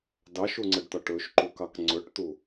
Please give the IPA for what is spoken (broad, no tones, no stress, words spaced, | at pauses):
dɑʃuŋ͡ǀəɖt̪ɒʈ ɵʃǃukɑk ŋ͡ǀɵʈt̪u